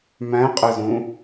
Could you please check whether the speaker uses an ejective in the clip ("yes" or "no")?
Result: yes